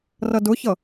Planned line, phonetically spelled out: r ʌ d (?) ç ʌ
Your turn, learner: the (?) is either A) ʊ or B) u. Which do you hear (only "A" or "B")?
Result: A